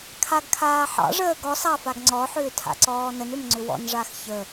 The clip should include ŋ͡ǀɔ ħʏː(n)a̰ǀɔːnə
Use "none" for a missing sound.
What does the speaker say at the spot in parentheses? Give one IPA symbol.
tʰ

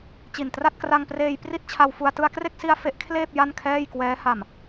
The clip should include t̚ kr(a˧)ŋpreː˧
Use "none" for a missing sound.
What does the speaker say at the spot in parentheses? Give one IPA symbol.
a˧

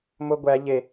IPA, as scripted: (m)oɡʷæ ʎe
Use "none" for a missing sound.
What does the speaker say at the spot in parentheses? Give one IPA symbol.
m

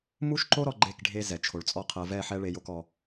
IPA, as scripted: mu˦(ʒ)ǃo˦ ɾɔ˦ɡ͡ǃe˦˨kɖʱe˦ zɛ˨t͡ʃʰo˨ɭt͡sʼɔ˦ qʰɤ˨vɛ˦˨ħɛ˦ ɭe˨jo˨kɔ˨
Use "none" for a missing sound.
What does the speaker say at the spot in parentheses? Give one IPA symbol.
ʃ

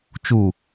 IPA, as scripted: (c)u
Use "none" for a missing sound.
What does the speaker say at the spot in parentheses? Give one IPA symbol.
t͡ʃ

